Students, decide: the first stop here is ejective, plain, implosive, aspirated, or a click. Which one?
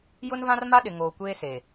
implosive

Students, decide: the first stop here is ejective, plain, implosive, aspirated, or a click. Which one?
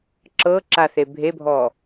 click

